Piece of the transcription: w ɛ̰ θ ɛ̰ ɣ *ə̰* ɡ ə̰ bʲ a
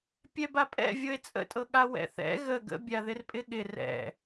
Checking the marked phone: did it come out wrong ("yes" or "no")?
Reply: yes